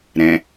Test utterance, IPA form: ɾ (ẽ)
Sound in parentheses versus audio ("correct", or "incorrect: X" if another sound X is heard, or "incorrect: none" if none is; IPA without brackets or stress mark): incorrect: ɛ̃